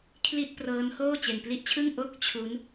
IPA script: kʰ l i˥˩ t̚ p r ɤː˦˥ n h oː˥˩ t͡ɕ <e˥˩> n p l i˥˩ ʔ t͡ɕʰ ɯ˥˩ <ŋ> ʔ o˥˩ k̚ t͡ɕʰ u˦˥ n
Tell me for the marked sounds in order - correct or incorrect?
incorrect, correct

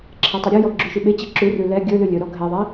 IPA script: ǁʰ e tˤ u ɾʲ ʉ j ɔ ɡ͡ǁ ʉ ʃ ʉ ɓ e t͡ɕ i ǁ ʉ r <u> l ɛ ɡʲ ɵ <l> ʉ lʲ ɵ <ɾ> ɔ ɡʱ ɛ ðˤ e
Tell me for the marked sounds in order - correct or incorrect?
incorrect, correct, correct

